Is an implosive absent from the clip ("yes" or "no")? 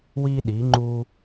no